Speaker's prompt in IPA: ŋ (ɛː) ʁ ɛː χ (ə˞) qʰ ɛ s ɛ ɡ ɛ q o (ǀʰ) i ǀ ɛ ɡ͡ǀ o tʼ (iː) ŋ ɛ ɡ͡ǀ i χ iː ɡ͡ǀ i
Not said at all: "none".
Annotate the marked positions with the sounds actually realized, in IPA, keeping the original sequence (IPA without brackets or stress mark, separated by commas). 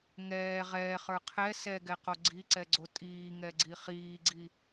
ɛː, ə˞, ɡ͡ǀ, iː